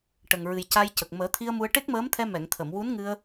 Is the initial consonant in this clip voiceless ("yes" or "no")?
yes